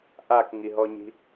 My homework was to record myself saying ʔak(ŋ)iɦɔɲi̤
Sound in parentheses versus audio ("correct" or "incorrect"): correct